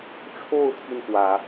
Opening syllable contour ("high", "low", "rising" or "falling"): falling